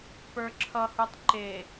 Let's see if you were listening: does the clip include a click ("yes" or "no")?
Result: yes